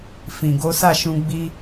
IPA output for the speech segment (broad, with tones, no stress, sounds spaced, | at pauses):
f ĩ˨ ɡ o˨˦ s a˦˨ ʃ ũ˧ ɡ͡b i˧